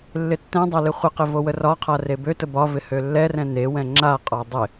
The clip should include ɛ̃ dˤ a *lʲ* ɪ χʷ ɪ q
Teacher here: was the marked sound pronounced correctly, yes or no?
no